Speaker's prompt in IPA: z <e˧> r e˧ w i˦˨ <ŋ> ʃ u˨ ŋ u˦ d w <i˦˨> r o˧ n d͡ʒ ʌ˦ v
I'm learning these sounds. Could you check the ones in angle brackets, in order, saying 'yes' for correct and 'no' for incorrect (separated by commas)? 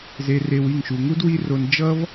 yes, yes, no